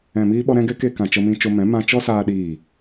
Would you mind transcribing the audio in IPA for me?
ɛ̃˨ m iː˧ ɓ ɔ˧ ɾ ɛ̃˦ ɡ ɛ˦ k e˧ k ã˨ t͡ʃ ə˧ m ĩ˧ t͡ʃ o˧ m ɛ̃˨˦ m ã˧ t͡ʃ ɔ˦ s aː˧ ɗ iː˦˨

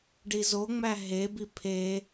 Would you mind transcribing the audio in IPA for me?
ɖ i z o ŋ͡m æ ɦ e b i pʰ e

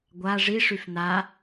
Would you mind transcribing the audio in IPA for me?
ɡʷ a ʐ i ʂ y f n a

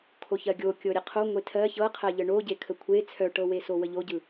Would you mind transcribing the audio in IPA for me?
kʰ o ç ɜ ɡʲ o kʲ ɤ ɾʲ ə qʰ o ŋʷ e tʰ ɜ ç ɤ qʰ ɜ ʎ ə ɳ o ɟ e kʰ ə kʷʰ e t͡sʰ œ ʈ ɤ w e s o w ə ʎ o ɟ ɯ

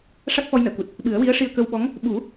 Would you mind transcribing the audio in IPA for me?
ʂ a˦˥ k̚ f ɔ˧ j n əː˨˩˨ k u˨˩ t̚ | ɓ ɨ˨˩˦ ə̯ w i˧˥ ə̯ ʂ i˧ ə̯ k ə˧ w ɓ ɔ˧˥ ŋ | ɓ u˨˩˦

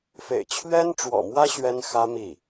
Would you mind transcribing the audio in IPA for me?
f ḛ˨˩ ɪ̯ t͡ɕʰ ɥ ɛ˥ n ʈ͡ʂ w ɔ̰˨˩ m w ä˥ ɕ ɥ ɛ˥ n x ä˥ m i˥˩

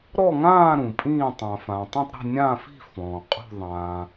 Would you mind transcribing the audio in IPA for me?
ɾ ɔ˥˧ ŋ ãː˥˧ ɾ ũ˨ pʼ ĩː˥˧ tˤ ã˨ f ã˨ tˤ ũ˥˧ tˤ ɾ i̤˥˧ nʲ ãː˥˧ f i̤˥˧ f ɔ̃ː˨ qʼ ṳ˥˧ ðˤ ãː˨

